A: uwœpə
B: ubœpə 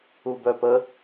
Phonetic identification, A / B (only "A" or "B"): B